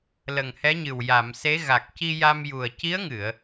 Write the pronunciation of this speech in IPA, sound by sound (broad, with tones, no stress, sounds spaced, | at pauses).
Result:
l ə˨˩ ŋ h ɛ˧˥ ɲ ɨ˨˩ w j a˨˩˨ m s e˧˥ ɣ a˨˩ k̚ c i˧ j a˧ m j u˨˩ ə̯ c i˧˥ ə̯ ŋ ɨ˨˩˨ ə̯